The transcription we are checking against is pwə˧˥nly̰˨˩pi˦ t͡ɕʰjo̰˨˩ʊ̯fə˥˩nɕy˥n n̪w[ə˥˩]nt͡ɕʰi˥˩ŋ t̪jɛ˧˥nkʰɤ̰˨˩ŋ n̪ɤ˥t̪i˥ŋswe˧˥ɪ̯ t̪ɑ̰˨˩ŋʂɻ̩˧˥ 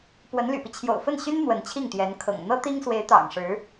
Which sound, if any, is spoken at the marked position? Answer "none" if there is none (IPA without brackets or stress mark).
ə˧˥